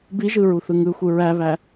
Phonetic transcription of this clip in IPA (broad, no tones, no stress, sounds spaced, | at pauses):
b i ʒ ɯ ɹ u θ ɯ ŋ ɯ xʷ ɯ ɹ æ β æ